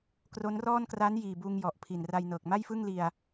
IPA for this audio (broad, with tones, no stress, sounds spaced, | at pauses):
k r o˦˥ n r ɔː˥˩ n k r aː˦˥ n j iː˨˩ b uː˧ ŋ j ɔ˨˩ ʔ pʰ i˨˩ n r a˧ j n ɤː˨˩ k̚ m a˥˩ j f ɯ˥˩ ŋ l i˧ a̯